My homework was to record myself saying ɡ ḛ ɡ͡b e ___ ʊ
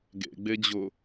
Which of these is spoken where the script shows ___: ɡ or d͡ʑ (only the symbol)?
d͡ʑ